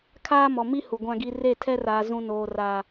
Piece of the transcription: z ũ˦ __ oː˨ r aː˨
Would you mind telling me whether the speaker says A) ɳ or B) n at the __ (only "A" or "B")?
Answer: B